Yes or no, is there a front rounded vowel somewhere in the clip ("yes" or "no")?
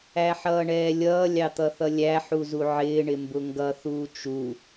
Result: no